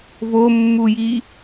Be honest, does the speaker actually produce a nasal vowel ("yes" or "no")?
no